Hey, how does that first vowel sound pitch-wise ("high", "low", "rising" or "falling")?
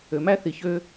low